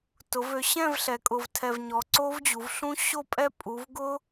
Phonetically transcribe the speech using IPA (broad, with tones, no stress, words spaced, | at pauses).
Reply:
tʊ˩˧vø˩˧ɕɛ̃˥˧v ɬɛ˩˧kʼʊ˨˩vtʰɛ˨˩v ɲɔ˨˩ǀo˦˥vd͡ʑu˩˧vɬũ˦˥ ɕo˥˧pʼɛ˦˥ pʼu˩˧vɡʊ˦˥